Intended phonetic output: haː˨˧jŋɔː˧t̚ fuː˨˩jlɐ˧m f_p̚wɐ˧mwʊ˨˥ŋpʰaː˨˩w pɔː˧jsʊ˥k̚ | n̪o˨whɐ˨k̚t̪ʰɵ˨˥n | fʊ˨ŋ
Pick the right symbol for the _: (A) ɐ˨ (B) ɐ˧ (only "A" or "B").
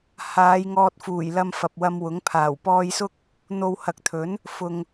A